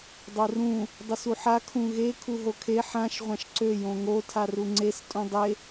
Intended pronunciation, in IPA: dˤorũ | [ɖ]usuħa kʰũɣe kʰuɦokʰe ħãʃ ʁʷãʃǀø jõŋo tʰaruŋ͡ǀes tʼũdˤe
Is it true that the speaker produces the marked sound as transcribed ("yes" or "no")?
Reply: no